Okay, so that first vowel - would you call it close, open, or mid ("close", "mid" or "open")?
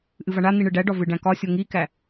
close